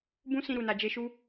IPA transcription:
b ũ˦ s ĩ˧ ɾ u˨ n a˨ d͡ʒ e˧ ʃ u˦

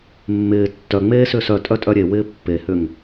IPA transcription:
mː ɪː tː œ ŋ͡m eː s ʏː s œ tʼ œ tʼ œ ɾʲ e w ɪː pː e h ʏ ŋ

